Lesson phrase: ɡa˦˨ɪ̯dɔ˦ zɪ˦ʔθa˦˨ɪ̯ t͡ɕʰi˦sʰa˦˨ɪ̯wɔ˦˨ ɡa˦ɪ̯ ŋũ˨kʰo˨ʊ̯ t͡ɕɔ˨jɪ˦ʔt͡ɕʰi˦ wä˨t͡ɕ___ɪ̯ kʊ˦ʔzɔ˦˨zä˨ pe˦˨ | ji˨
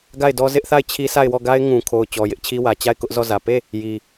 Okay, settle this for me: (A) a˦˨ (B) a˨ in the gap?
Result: A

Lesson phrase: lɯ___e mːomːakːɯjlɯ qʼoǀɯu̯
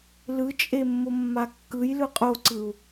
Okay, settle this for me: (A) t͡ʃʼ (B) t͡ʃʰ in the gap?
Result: A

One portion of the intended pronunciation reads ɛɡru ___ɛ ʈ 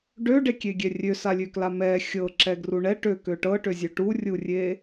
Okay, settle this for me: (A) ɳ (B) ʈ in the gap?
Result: A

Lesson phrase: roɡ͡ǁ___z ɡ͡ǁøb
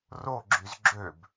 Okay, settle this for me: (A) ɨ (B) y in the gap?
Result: B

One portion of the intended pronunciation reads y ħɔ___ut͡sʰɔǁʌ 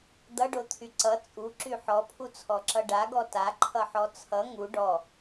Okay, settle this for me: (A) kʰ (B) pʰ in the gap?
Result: B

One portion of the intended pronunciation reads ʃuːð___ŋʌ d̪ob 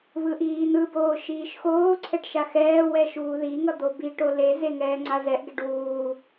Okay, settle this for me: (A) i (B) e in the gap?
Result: A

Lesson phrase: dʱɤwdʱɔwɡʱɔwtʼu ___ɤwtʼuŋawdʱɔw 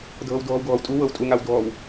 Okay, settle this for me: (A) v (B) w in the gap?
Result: B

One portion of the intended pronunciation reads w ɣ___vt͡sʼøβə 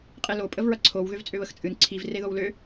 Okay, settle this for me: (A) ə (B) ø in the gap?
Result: B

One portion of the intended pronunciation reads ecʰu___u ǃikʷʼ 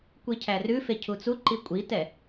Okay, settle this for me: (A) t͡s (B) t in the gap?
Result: A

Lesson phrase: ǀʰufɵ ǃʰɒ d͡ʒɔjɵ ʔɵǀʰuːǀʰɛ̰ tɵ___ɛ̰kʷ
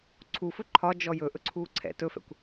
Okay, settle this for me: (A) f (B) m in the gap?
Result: A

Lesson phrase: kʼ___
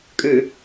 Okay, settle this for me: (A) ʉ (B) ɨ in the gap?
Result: A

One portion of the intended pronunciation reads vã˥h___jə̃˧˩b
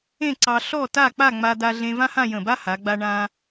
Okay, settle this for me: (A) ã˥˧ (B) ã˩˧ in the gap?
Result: A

